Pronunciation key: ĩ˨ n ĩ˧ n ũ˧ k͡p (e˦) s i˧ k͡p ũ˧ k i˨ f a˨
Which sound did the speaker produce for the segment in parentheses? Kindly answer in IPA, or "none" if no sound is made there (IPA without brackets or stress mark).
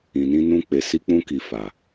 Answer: e˨